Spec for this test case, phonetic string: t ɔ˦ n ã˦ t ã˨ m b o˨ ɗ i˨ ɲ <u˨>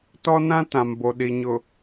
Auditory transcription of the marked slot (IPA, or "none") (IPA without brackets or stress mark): ʊ˨